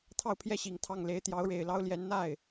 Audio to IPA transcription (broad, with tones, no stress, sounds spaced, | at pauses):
t̪ʰ ɑ˥˧ ʊ̯ pʰ j ɛ˥˩ ɕ i˨˩ ŋ t̪ʰ ɑ˥˩ ŋ l e˧˥ ɪ̯ t̪ j ɑ˧˥ ʊ̯ ɻ e˨˩ ɪ̯ l ɑ˥ ʊ̯ l j ɛ˧˥ n n̪ a˥˩ ɪ̯